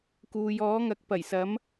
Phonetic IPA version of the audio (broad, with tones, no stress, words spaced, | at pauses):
kuː˨jɔː˨˥ŋɐ˨˥k̚ pɐ˨˩jsɐ˨˥m